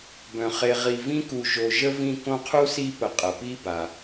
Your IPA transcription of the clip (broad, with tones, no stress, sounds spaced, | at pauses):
b œ̃˩ χ e˨ ʁ i˨ v ĩ˥ k u˨ ʒ o˨ ʒ ə˥ v ĩ˦ k õ˦ qʰ u˥ s i˦ p ə˨ qʼ ə˩ p i˥ b a˩